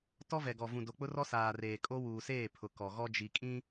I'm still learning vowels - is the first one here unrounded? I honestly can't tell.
no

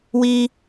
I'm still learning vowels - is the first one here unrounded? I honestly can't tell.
yes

